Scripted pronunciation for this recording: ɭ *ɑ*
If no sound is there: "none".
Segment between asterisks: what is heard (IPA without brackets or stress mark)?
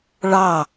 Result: ɑ